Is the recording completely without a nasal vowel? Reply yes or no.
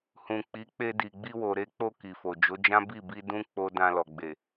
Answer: no